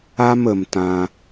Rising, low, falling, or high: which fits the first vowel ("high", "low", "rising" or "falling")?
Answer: high